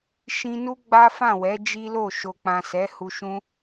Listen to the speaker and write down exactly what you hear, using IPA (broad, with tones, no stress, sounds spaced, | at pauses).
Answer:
ʃ ĩ˧ n u˦ ɡ͡b a˦ f ã˦˨ w ɛ˨˦ d͡ʒ i˦ l o˦˨ ʃ o˨ k͡p ã˨ s ɛ˨˦ h u˧ ʃ ũ˦